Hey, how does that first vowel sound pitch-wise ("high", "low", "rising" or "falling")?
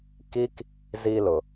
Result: high